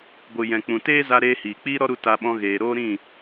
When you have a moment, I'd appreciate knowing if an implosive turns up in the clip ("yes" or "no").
yes